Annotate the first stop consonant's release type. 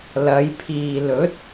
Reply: aspirated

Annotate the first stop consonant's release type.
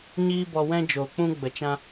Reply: plain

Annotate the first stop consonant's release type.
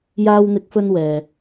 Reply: plain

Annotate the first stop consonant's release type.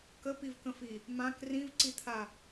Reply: plain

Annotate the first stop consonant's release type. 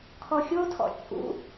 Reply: aspirated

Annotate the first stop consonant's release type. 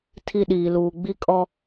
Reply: aspirated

